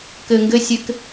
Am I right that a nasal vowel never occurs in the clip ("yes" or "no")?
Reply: yes